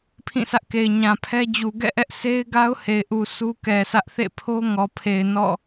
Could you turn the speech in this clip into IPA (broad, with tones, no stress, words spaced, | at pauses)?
pʰĩ˦˨sʰä˦ʔke˨ɪ̯ ɲã˨pʰɛ˦d͡ʑu˨ ɡɛ̰˦˨ʔɛ˦ʔ sʰe˦ɪ̯ɡa˦ʊ̯ he˨ɪ̯ʔu˨ sʰu˦kɛ˨sʰä˦ʔ θḛ˦˨pʰo˦ ŋɔ˨pʰe˨ɪ̯ nɔ̰˦˨